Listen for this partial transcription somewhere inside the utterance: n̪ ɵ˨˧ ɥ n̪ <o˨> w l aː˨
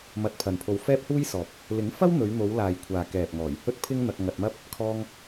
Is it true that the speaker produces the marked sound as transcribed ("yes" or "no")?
no